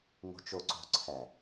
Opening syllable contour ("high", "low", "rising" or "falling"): low